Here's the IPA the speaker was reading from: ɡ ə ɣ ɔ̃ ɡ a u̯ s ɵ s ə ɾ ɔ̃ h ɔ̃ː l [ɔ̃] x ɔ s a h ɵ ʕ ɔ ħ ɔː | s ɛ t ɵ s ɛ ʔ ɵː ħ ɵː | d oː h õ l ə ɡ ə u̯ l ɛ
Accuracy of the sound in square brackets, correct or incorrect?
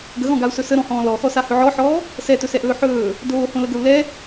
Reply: incorrect